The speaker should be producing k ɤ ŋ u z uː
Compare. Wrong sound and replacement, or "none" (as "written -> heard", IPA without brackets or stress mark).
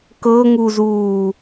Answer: none